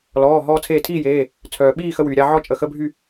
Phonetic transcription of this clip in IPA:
lɔː˩˧˩ɦɔː˧ t͡sʰeː˧˩tʰiː˥˨jeː˩˧˩ | t͡sʰœː˩ɓiː˥˨xə˧ wyː˩ɾʲa˥˨ ʕɔ˥˨t͡ʃʼə˩˧˩xə˧˥˧bʱy˥˨

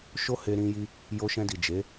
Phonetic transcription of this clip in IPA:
ʃo˦he˧ ɾĩ˧ji˧ | jo˧ʃɛ̃˧di˨ d͡ʒe˨˦

